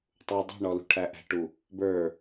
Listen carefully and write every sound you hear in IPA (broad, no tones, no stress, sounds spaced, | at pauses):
tˤ u dˤ i̤ ɳ ɔ l ṳ ʈʰ æ ʔ æ̤ ʈ u | b ə˞